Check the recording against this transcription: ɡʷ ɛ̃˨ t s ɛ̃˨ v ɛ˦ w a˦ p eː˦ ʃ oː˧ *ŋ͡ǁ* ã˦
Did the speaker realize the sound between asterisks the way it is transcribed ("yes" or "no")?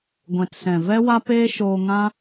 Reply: no